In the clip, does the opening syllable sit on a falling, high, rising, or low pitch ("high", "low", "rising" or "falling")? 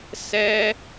high